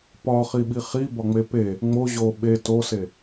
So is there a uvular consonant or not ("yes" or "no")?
yes